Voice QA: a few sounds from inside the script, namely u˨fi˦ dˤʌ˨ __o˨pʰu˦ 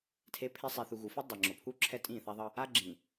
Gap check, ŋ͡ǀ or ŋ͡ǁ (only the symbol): ŋ͡ǁ